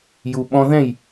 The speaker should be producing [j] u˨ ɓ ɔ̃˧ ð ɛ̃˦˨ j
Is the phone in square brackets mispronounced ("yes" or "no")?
no